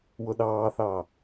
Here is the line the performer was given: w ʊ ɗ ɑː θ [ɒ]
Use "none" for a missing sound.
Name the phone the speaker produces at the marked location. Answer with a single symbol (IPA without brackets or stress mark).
ɑ